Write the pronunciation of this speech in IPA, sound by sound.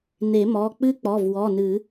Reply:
n e˨˩˦ m ɔ˩˧˩ k͡p ɨ˦˥ k͡p ɔ˩˧˩ v w ɔ˩˧˩ n ɨ˨˩˦

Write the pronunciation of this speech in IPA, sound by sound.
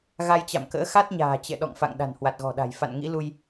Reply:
ɣ a˧ j t͡ɕ a̰˧˨ m k ə̰ː˧˥ x a˦˥ t̚ ɲ a̤ː˨˩ t͡ɕ ɛ̰˧˨ ɗ ɔ̰˧˨ ŋ f a̰˧˨ ŋ ɗ a̤˨˩ n h w a˨˩ t̚ ɣ ɔ̤˨˩ ɗ a̤˨˩ j f a̰˧˨ n ŋ ḭ˧˥ l u˧ j

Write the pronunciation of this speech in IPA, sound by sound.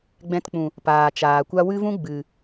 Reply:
ɡ͡b ɛ̃˧ t k͡p ũ˨ | p aː˨ t͡ʃ aː˨ kʷ a˦ w ɨ˦ v ũ˦ ɡ͡b ɨ˨

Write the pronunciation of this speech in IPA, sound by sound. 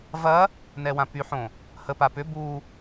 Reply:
v ɐ | n ɛ w ã p y ħ õ | h ə p a p ʏ b u

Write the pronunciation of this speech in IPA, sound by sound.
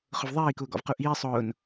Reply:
χ ʊ v ðˤ iː k ʊː ɡ ɔ̰ v q u ʔ iː sˤ ʊː n

